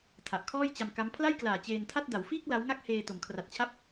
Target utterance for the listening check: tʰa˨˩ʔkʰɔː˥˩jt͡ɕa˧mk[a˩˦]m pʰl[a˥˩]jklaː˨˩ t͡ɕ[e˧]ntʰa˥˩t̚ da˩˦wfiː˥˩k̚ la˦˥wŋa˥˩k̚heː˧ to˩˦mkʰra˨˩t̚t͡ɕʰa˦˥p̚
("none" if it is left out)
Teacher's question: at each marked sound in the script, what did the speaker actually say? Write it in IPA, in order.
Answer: a˦˥, a˥˩, eː˧

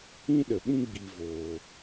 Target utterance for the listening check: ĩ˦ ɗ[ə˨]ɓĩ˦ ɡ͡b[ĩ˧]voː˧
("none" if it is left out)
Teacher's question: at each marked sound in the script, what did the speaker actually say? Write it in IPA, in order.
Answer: ə˨, i˧

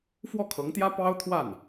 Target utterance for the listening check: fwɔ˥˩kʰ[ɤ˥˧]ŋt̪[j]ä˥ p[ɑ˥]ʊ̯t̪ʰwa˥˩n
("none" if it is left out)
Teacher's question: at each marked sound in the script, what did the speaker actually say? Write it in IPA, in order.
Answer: ɤ˧˥, j, ɑ˥

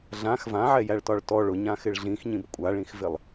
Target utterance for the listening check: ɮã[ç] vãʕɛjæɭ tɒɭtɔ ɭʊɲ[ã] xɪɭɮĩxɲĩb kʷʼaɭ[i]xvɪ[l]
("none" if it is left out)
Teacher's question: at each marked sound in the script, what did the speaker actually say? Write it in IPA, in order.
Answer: x, ã, ĩ, lˠ

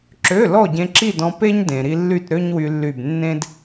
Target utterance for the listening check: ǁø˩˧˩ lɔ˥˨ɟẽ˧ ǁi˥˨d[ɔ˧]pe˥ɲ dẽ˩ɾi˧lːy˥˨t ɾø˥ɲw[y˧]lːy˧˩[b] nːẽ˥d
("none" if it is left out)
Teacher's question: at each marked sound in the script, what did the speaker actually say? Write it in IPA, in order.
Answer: ɔ̃˧, y˧, b

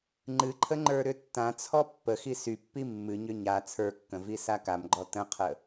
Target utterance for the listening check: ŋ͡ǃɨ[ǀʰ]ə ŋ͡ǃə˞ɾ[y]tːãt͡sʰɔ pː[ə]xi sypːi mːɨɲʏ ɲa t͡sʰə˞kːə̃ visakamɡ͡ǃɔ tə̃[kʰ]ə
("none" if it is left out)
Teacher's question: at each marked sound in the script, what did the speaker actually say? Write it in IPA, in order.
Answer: ǃʰ, ʏ, ə, qʰ

